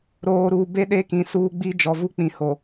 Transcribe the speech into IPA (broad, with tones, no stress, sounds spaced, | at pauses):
ɾ oː˨ ɾ uː˨ b e˦ ɗ e˦ k ĩ˨ s uː˦ ɡ͡b i˦ d͡ʒ ɔ˨ v u˦ k͡p ĩ˨ h o˨